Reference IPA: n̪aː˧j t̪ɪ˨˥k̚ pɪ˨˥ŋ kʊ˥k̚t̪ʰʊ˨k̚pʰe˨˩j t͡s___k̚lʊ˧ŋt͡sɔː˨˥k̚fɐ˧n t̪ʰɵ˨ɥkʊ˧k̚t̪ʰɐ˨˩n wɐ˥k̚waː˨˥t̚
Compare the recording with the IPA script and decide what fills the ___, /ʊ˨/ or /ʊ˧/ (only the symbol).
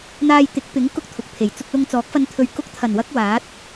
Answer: ʊ˧